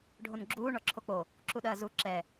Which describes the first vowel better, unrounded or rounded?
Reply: rounded